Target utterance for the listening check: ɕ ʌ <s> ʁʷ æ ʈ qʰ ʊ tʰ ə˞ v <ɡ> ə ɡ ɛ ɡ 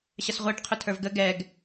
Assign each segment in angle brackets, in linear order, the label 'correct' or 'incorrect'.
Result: correct, correct

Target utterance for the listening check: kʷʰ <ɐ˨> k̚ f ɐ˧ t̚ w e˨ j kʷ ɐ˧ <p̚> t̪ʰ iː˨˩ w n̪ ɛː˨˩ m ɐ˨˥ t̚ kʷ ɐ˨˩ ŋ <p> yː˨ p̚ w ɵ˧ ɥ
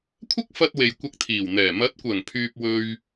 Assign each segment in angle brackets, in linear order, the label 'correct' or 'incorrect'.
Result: incorrect: ɐ˥, incorrect: k̚, incorrect: pʰ

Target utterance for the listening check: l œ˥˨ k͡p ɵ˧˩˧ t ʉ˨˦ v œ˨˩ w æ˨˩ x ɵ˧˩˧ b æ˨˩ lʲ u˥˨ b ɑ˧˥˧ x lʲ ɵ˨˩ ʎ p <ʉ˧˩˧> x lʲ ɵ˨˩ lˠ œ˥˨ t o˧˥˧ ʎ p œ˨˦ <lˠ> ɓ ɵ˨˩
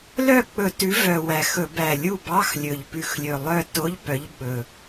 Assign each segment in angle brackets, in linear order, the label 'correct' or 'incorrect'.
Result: correct, incorrect: ʎ

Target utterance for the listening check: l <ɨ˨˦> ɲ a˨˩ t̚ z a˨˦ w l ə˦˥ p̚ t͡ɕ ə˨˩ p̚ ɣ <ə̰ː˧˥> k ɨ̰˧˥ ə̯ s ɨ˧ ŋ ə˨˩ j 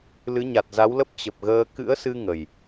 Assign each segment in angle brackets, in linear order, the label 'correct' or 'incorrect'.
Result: correct, incorrect: əː˧

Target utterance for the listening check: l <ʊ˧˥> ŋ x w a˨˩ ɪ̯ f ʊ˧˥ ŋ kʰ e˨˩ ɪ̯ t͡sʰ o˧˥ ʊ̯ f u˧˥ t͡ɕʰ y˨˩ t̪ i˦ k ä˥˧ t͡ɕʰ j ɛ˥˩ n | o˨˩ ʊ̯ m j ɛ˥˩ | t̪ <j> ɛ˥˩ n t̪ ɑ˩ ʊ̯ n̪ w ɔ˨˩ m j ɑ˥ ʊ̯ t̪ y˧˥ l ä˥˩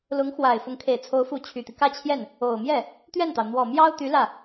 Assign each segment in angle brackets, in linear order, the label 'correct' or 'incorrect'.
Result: correct, incorrect: ɥ

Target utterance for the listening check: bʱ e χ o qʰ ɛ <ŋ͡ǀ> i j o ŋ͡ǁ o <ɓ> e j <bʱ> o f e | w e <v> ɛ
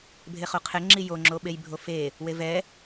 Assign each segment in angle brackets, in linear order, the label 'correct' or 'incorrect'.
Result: incorrect: ŋ͡ǁ, correct, correct, correct

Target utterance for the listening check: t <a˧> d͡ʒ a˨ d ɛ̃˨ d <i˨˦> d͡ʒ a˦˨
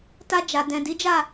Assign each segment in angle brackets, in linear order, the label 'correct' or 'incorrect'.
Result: correct, correct

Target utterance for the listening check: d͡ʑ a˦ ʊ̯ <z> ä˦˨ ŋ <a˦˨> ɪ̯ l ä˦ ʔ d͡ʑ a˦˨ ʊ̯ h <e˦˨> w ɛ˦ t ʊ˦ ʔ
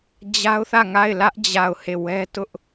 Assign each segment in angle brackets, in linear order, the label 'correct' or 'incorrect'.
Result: incorrect: θ, correct, correct

